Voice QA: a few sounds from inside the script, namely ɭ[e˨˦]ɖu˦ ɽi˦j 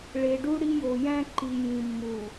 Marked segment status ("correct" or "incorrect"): incorrect